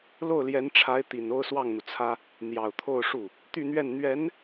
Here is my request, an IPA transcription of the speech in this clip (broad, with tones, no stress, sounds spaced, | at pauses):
l o˥˩ ʊ̯ l j ɛ˧˥ n ʈ͡ʂʰ a˧˥ ɪ̯ t̪ i˨˩ n o˥˧ ʊ̯ s w ɑ˥˩ ŋ n̪ u˩ t͡sʰ ä˥ | n̪ j ɑ˨˩ ʊ̯ t̪ʰ o˥˧ ʊ̯ ʂ u˥˩ | t̪ y˥˧ n̪ ɥ ɛ˥˩ n n̪ ɥ ɛ˧˥ n